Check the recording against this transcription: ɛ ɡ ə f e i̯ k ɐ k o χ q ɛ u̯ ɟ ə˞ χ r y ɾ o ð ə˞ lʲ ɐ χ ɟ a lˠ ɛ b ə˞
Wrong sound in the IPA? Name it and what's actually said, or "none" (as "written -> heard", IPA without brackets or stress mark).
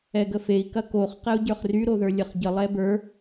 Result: a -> ə